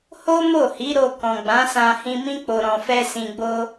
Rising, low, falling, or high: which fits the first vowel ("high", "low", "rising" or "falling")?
high